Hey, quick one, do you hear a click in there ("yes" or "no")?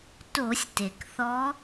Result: no